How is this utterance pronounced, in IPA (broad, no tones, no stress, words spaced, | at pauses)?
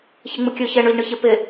çeŋ͡mɯkʲø çɛɳə˞ʎɳɯçe pe